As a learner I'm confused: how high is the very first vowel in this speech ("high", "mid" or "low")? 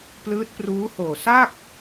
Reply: high